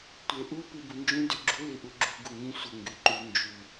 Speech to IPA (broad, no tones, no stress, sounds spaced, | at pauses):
tʷ e ʔ u p i b u n d͡ʒ ũ d y ɡ͡ǁ u l i ʔ u ɡ͡ǁ u ɡ u ŋ ĩ sʷ ə ŋ ɡ y ǃ y n d͡ʒ y